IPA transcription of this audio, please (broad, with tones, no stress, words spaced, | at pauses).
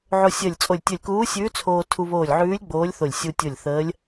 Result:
ʕo˧sʲəː˧˩lʲt͡sʼo˧˩lʲ tʲə˧˩lʲkuː˧˥sʲʉː˧˥ t͡sʰoː˧tʰu˧βoː˧˩lʲ ʕʉː˧˥lʲ ɡ͡boː˧˥lʲθo˧˩lʲ sʲu˧tʲo˧˩lʲ θəː˧˥lʲ